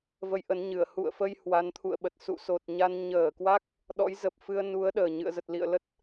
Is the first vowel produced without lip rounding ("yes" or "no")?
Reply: yes